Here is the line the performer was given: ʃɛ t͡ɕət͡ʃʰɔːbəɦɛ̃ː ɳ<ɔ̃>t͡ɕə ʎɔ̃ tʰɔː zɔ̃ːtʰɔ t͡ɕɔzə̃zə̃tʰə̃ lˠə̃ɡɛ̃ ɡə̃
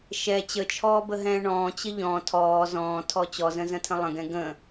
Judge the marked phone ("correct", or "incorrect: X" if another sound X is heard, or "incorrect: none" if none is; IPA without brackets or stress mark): incorrect: ɔ̃ː